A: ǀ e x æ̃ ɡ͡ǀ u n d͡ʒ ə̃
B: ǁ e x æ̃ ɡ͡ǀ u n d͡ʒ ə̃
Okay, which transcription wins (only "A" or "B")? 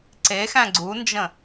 A